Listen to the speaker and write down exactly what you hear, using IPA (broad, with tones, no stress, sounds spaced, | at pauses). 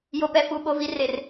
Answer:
j o˨ p ɛ˨ f uː˨ ɓ o˨ v i˨ r e˨ r